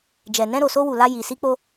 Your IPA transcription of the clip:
d͡ʒɛ˨ nɛ̃˧ɾo˨so˧ wu˨la˧ ji˨si˧k͡po˧

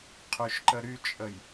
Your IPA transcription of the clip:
qʰyʃǃəɾyt͡ʃʼəj

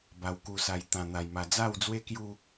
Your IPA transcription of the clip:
ba˧wku˧sa˧j t̪ã˧n̪a˧jma˧ d͡za˥˧wd͡zwe˦kju˦

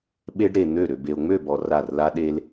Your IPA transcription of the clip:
ɓe˦ɖ ɾe˨n̪ø˦˨ ɾø˨be˨o̯ ŋ͡mø˦˨bɔ˨ ra˦˨r la˦ ɗe˦l

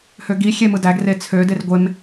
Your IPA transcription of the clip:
høɡi xʲemɯdæɡ ret͡sʰø derɡʷem

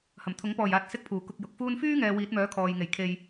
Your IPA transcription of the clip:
hɐ˨˩mt̪ʰʊ˨˥ŋ pɔː˨˩jaː˨t̚sɪ˨˥k̚ pʰuː˨˩ kʊ˧k̚jʊ˨k̚fuː˥n fyː˥ŋɛː˨ wiː˨˥t̚mœː˨˥kʰɔː˨jŋe˨˩j kʰe˨j

